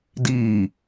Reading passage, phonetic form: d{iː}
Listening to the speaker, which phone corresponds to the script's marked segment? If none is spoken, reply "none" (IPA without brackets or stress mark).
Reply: iː